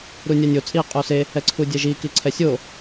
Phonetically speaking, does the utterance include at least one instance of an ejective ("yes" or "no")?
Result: yes